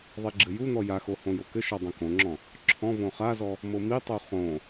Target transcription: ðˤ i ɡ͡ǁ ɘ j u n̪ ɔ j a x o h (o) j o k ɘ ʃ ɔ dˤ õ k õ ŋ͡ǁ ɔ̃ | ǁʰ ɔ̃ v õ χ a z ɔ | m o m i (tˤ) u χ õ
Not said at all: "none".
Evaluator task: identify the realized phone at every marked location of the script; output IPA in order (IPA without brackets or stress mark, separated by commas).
õ, tˤ